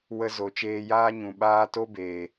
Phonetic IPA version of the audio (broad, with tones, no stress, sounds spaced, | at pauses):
w ə˧ z o˨ t͡ʃ eː˧ j aː˦ ɲ ũ˨ ɓ aː˦ t o˦ b eː˨